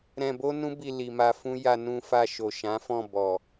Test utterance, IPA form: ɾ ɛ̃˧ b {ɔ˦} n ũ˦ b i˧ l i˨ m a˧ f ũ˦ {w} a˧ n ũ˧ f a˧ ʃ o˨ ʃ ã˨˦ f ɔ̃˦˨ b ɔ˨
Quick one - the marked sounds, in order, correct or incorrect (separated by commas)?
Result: incorrect, incorrect